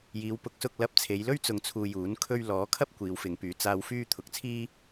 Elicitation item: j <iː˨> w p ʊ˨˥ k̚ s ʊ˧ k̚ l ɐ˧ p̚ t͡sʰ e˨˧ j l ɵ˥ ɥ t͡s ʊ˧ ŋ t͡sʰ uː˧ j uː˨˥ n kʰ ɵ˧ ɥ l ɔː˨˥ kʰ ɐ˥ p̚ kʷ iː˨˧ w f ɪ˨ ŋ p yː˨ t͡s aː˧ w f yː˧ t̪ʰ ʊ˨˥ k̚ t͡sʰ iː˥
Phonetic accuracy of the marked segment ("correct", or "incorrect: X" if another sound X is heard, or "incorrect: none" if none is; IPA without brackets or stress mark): incorrect: iː˨˧